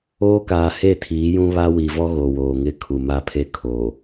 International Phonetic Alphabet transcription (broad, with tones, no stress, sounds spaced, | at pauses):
oː˦ k aː˨ h e˦˨ tʰ iː˨˦ j ũ˦ β a˦ w i˨ v ɔ˦ ɣ o˨ w oː˨ ŋ ɪ˦ kʰ u˨ m a˦ pʰ e˦ kʰ o˨